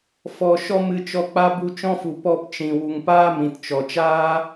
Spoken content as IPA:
fɔ˧ ʃɔ˦mɨ˧ t͡ʃɔ˧k͡pa˦ bu˦ t͡ʃɔ̃˦fu˨ pɔ˧pt͡ʃĩ˨ wu˨ŋpaː˦ mĩ˨tt͡ʃɔ˨ t͡ʃaː˦

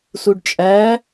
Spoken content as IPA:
suɖt͡ʃʼæ

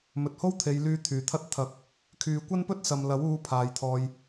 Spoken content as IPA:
mɵ˨t̚ho˥wt̪ʰe˨˧jlyː˧ t̪ʰyː˨˩t̪ʰɐ˥t̚ t̪ʰɐ˨˥k̚ | kʰyː˨kʷɐ˥npɵ˥t̚ sɐ˨mlɐ˨˥w uː˨˧ pʰaː˨˧jt̪ʰɔː˧j

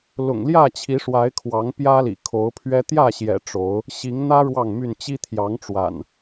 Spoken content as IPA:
lʊ̰˨˩ŋljä˥˨t͡ɕʰi˨˦ ʂwa˨˦ɪ̯kʰwɑ˨˦ŋ pjä˦lḭ˨˩kʰo˨˦ʊ̯pʰɥɛ˦ t̪jä˥˨ɕjɛ̰˨˩ ʈ͡ʂo˨˦ʊ̯ | ɕi˨˦ŋn̪ä˦ ɻwɑ˥˨ŋmy˥˨n t͡ɕi˦t̪ʰjɑ˨˦ŋʈ͡ʂwa̰˨˩n

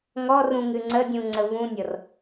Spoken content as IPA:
ŋɔrũ ŋɨŋ͡ǀədʲũ ŋ͡ǀəvũnʲɤr

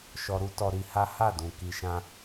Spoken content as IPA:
ʃɔ˧ɾu˦tɔ˧ ɾi˧ha˦ ha˦˨dũ˨ ki˨ʃã˧

